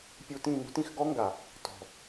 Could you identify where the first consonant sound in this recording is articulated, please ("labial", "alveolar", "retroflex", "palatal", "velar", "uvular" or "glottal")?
labial